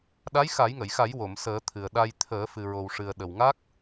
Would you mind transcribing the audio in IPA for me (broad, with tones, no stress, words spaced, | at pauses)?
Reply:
ɗa˧˥jxa˨˩˦jŋə˨˩˨jxa˨˩˦j wo˨˩˨msəː˨˩˦t̪ʰɨ˨˩ə̯ɗa˧j t̪ʰəː˨˩˦ fɨ˨˩ɹo˨˩wʂɨ˨˩ə̯ ɗə˨˩wŋa˦˥k̚